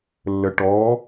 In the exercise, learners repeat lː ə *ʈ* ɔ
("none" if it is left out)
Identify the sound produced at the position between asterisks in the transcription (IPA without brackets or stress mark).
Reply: ʈ